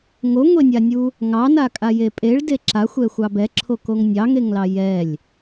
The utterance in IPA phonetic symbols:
ŋ o ŋʷ e nʲ a nʲ u | ŋ ɑ n a kʼ a j e pʼ e ɭ d e ǁ a xʷ ɛ xʷ ɑ b ɛ ǁʰ o k o ŋ nʲ ɑ ŋ e ŋ l ɑ j ɛ lʲ

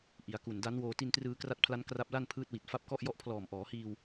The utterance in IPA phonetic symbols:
ʔ i˩˦ a̯ k u˨˩ n d a˦˥ n w oː˧ t i˧ n t r ɯː˧ k r a˦˥ t̚ pʰ l a˦˥ n k r a˦˥ p̚ l a˥˩ n pʰ ɯː˦˥ t̚ w i˨˩ t̚ f a˦˥ p̚ k ɔ˥˩ ʔ j ɔ˥˩ ʔ pʰ l ɔː˨˩ m ʔ ɔː˩˦ h iː˧ w

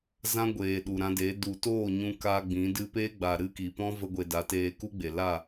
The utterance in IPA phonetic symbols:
z ã˦ ɡʷ eː˨ ɗ u˨ ɾ ã˧ d e˨˦ d u˨ t oː˦˨ ɲ ũ˧ k a˧ ɡ͡b ĩ˨˦ d ɨ˧ p e˦ ɡ͡b a˨ ɾ ɨ˦ k i˨ p ɔ̃˦ v ə˧ ɡʷ e˨ d a˨˦ t eː˧ k u˦ ɡ͡b e˨ l a˦˨

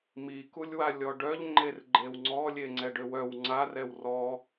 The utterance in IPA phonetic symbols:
m i k u lʲ w a lʲ ɔ ɖ œ ʎ ŋ͡ǃ e r ɡ͡ǃ e w ŋ͡ǀ ɔ lʲ e ŋ͡ǀ ɛ ɖ ø w œ w ŋ͡ǀ a r ɛ w r ɔ

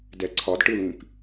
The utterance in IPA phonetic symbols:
d ɛ ǀʰ ɒ d ʈ ɯ l ĩ p

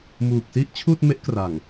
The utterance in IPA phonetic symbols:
m uː˨˩ k̚ s i˥˩ ʔ t͡ɕʰ uː˥˩ t̚ m e˦˥ ʔ k r a˨˩ ŋ

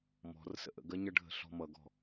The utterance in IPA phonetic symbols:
m ɔ̤ r s ə̰ ʔ ə̰ ɡ ɜ ɲ ʌ ɖʱ ə̤ ɬ ɔ̤ m ʌ ɡ ɔ̤

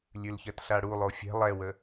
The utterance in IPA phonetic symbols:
lʲ ʉ l ç ɜ t ɬ a ɽ u lˠ o fʲ ɛ̤ lˠ ɛ w ə

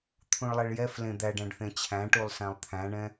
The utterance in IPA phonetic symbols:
t̪ʰ ũ ɭ lˠ ɛ ɭ j ɛ f l ẽ d̪ æ ɖ æ̃ ɖ θ ẽ t͡ɕʰ æ̃ ʈ u lˠ s æ̃ lˠ t̪ʰ æ̃ ɳ ɛ̃

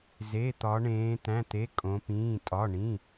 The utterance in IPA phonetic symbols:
z e˩˧˩ t̪ ɒ˩˧ ɳ ẽː˩˧ t̪ æ̃˩˧˩ t̪ e˩˧˩ kʼ õ˩˧ p ĩː˩˧˩ tʼ ɒ˩˧˩ ɳ ĩ˩˧˩

